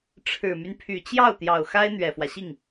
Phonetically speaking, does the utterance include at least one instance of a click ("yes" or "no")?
no